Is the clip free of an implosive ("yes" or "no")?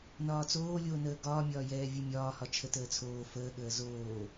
no